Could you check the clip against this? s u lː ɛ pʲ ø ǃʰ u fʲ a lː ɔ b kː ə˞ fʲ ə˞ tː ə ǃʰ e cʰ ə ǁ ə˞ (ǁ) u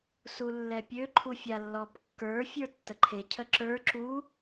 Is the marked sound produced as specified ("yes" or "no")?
yes